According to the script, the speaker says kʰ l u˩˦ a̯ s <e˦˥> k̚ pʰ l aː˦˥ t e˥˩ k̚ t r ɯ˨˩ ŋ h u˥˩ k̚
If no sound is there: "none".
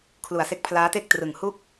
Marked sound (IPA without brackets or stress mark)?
e˦˥